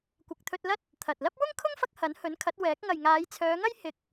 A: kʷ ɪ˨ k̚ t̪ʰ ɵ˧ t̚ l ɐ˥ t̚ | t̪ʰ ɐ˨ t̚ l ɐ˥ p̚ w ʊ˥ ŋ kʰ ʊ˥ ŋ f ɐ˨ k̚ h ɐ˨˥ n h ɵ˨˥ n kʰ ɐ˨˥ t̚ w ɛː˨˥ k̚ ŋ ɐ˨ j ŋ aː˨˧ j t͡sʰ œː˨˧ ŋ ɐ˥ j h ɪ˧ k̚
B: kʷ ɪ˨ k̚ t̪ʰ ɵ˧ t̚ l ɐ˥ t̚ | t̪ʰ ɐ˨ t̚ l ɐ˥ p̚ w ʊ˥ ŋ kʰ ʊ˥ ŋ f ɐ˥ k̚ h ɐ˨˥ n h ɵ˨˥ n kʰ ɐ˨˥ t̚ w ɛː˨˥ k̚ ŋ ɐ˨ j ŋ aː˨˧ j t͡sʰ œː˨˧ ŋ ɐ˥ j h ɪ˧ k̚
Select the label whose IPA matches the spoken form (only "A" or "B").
B